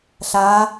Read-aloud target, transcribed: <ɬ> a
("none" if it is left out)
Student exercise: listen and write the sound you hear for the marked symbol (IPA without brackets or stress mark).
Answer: ɬ